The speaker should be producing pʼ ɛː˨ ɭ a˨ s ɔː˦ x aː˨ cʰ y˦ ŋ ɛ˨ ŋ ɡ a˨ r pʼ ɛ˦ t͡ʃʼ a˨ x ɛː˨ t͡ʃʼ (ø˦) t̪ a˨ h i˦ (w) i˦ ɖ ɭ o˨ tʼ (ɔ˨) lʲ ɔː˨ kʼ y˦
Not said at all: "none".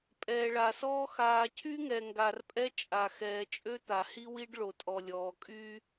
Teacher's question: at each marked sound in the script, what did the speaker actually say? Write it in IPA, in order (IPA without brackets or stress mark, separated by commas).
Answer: ø˦, w, ɔ˨